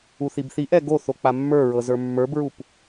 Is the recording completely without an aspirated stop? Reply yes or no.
yes